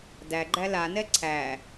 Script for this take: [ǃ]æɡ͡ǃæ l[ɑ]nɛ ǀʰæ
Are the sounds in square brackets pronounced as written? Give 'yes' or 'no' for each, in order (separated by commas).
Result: no, no